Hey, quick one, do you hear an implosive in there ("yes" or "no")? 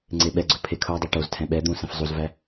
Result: yes